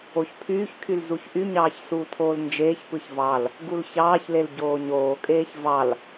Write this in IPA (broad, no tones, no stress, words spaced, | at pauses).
oçpʰyːçkʰyl zuçʔyɲɑːç suːtʰoːlnd͡ʒeːçpɯç vɑl | ɡulçɑːçlel ɟoːɲoːkʼeːç vɑl